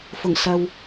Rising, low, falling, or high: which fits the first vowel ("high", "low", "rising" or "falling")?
low